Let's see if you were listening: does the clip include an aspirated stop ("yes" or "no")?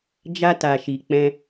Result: no